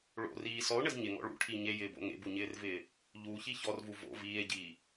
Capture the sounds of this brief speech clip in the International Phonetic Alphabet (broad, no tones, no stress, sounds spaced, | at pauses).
ɭ o̰ r iː s ɔ o̯ ɳ ɘ z ɲ ɪ ŋ ɔ̰ ɭ ṵ ʈʰ i ɲ e j ɪː b o̰ ŋ ḛ b u ɲ ɪː r v ɪː | ʎ u ç i ç ɔ r v u v o̰ v iː e̯ ɟ iː